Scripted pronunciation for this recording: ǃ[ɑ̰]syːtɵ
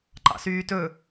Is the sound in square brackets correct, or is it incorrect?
correct